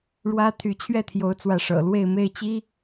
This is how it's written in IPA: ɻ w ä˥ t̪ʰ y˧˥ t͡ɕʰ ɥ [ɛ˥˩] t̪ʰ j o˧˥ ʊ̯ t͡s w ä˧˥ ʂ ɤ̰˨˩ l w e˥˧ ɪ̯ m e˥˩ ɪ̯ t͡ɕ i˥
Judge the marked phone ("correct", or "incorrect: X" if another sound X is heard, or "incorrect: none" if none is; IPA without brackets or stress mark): correct